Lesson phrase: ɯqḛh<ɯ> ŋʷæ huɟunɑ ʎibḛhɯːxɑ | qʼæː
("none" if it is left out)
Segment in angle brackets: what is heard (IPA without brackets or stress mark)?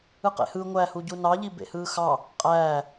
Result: ɯ